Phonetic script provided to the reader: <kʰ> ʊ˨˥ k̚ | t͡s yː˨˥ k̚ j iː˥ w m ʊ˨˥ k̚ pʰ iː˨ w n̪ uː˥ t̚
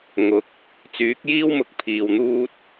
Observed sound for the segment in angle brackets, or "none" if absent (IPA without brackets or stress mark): ŋ